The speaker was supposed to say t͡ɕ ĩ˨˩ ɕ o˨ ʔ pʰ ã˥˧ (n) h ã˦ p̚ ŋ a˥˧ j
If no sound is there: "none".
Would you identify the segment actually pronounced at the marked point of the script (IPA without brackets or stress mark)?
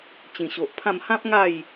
m